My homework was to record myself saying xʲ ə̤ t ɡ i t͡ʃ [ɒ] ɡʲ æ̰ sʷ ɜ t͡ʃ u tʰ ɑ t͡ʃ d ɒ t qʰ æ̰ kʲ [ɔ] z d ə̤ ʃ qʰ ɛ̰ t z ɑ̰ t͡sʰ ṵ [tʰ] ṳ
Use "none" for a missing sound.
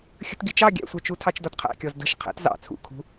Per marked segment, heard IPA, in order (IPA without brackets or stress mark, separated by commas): ɑ, ɔ, kʰ